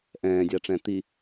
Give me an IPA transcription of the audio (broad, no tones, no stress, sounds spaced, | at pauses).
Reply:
ʔ ɛ̃ː dʲ a ʈ͡ʂ ɛ̃ t̪ i